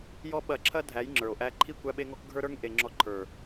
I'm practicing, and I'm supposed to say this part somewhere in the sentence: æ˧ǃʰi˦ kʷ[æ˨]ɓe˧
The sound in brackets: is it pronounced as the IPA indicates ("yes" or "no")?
no